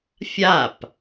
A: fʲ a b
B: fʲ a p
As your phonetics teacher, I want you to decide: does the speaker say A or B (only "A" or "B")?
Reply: B